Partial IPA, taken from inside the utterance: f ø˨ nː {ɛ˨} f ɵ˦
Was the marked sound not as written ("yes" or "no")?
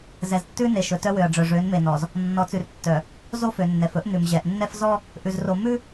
no